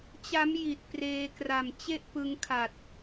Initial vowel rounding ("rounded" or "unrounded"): unrounded